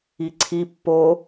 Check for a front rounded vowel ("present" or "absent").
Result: absent